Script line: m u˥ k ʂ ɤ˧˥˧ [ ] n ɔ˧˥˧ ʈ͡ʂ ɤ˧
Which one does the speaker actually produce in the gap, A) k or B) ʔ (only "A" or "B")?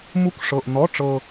B